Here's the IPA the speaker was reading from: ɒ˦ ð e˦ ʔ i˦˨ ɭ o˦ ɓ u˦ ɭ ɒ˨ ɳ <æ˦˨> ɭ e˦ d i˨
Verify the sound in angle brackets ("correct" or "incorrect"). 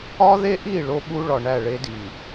correct